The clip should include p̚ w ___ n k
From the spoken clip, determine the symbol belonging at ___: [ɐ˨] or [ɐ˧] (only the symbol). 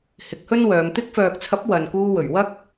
ɐ˨